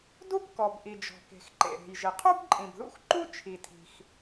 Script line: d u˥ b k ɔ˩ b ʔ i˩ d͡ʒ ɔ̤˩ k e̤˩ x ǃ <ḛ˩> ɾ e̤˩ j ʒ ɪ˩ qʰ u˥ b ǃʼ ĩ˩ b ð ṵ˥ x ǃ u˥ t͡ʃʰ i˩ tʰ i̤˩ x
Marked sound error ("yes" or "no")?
no